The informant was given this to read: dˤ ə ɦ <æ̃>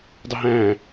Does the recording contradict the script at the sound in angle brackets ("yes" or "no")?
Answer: no